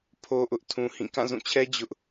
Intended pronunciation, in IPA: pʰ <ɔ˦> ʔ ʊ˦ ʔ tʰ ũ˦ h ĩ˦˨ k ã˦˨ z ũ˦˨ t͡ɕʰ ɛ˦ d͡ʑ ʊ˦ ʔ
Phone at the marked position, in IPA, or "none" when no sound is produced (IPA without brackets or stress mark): o˦